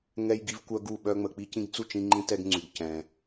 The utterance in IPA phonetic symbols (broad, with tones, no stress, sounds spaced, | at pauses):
ŋ ɛ˦ j ɡ i˦ v kʷ œ˦ ɡ u˦˨ ɓ œ˦ ŋ͡m ə˨ k͡p i˦ c ĩ˦ ɡ t͡s u˦˨ t͡ʃ ĩ˦ ŋ͡ǃ ĩ˦ t ɛ˦ ɡ ŋ͡ǀ y˨ ɡ c ɛ̃˨